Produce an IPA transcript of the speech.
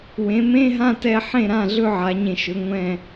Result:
w ẽ˩˧ m ẽ˧˥˧ ɦ ã˥˧ t ɛ˧ ħ ẽ˥˩ ɾ ã˥˩ ɮ ɵ˥˧ ʕ a˩˧ ɲ ẽ˧˩ ʃ ɵ˩˧ ŋʷ ɛ̃˧˩

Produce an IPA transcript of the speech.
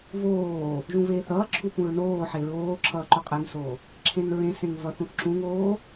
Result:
v oː | ʒ ũ v eː θ ʌː ǁʰ u p ũ ɹ n oː ħ e ɹ oː ǁʰ ʌː ǃ o qʼ e ŋ s oː | ǁʰ ẽ n ɹ ẽ s ẽ ŋ v ʌ θ ũ θ ǁ ũ ŋ oː

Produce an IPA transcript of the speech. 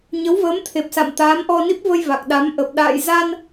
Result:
ɲ ə˨˦ w v əː˨˦ m t̪ʰ e˨˩ p̚ s a̰˧˨ m t̪ aː˨˦ m ʔ ɔ˧ n i˦˥ p̚ v ə˧ j v a˨˩ k̚ ɗ a˨˦ m ʔ ə˨˩ p̚ ɗ a̰ː˧˨ j z a˧ n

